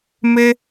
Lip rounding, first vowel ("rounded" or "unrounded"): unrounded